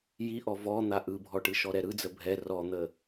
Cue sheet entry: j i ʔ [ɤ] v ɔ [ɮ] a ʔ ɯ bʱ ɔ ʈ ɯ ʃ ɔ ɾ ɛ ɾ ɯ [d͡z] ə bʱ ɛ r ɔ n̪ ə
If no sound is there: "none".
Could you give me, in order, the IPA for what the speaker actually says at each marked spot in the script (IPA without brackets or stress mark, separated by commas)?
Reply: ɔ, n̪, d͡z